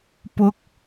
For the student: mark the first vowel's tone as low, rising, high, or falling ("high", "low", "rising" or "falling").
high